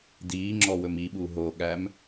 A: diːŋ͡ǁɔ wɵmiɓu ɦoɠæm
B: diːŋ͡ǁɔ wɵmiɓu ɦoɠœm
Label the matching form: A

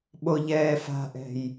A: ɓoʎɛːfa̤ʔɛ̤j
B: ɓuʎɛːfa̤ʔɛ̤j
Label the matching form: A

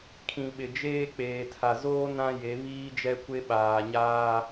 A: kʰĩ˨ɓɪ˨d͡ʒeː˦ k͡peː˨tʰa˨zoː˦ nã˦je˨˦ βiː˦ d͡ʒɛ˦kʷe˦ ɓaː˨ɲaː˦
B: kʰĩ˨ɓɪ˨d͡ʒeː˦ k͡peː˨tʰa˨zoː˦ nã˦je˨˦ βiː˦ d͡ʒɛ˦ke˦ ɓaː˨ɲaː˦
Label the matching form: A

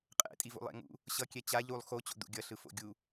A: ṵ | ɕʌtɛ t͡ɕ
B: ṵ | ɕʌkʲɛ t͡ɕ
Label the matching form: B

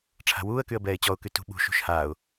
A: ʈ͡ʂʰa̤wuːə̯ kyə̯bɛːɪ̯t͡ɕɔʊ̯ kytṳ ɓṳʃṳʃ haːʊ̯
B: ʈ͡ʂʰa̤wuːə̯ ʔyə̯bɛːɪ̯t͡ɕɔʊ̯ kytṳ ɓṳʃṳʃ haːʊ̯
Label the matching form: A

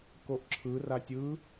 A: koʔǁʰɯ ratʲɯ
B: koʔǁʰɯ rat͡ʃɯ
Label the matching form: A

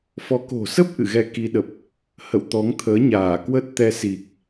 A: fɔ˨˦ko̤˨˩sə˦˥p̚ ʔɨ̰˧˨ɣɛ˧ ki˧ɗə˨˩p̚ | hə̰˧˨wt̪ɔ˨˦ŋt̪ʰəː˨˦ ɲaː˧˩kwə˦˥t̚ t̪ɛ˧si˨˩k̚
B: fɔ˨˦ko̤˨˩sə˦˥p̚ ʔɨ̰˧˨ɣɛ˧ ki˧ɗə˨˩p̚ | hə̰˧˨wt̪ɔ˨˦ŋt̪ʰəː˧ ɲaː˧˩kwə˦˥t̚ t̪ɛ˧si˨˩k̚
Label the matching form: A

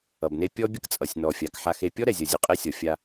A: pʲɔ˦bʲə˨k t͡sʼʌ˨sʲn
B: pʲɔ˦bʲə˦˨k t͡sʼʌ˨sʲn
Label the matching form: B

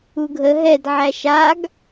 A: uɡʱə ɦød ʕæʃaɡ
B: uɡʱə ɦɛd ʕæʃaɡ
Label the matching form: B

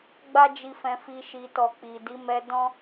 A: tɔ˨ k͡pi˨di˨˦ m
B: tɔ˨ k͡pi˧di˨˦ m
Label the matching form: A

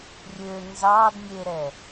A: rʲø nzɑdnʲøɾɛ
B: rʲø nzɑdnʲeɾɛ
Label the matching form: B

